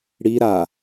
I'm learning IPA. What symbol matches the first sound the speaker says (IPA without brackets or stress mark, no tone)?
ɽ